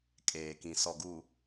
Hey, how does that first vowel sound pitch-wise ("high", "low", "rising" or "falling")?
low